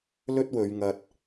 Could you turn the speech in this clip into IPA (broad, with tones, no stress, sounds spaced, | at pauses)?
l ɵ˥ t̚ w ɵ˨˧ ɥ ŋ ɐ˧ t̚